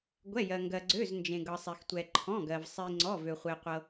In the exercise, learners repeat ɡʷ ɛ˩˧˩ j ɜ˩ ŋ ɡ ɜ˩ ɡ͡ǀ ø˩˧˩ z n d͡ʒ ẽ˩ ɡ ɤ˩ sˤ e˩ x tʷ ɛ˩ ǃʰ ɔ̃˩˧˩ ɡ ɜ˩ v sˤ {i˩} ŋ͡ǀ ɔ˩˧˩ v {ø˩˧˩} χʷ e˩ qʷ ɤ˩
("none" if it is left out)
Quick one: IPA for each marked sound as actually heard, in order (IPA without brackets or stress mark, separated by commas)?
i˩, ø˩